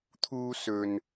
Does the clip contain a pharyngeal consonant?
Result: no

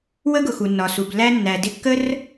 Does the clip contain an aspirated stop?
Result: no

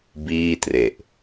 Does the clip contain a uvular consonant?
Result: no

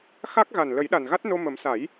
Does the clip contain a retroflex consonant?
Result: no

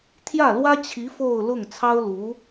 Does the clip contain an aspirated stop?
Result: yes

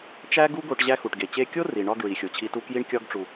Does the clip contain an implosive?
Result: no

